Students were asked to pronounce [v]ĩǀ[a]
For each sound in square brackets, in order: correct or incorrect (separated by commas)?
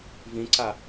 correct, correct